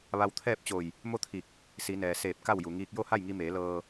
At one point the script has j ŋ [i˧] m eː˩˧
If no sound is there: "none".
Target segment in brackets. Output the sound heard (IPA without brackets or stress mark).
i˧